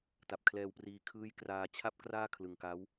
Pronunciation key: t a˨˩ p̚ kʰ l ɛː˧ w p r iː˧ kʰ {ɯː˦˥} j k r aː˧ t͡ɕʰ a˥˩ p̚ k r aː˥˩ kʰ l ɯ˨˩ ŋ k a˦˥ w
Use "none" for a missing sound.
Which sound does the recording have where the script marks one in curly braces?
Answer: ɯː˦˥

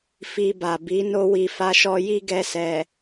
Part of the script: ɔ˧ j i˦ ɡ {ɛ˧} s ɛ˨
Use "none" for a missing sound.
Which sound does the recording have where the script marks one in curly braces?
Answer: ɛ˧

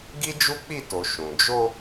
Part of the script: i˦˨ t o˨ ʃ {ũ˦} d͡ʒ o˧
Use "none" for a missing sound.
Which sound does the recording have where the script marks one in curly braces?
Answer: ũ˨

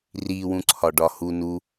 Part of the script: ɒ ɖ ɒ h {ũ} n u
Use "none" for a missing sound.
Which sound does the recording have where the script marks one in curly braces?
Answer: u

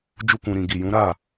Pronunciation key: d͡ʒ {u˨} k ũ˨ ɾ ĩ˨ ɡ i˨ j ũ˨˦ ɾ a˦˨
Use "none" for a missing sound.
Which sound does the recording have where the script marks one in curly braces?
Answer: u˧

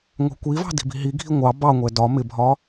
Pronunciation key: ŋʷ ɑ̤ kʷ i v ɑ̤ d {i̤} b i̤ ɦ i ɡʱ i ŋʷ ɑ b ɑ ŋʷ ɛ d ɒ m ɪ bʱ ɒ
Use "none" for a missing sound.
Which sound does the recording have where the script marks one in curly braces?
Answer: i̤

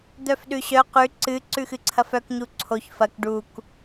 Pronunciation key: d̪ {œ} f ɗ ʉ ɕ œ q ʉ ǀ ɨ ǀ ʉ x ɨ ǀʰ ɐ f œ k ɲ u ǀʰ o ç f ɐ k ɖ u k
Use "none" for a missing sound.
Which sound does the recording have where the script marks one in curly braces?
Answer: œ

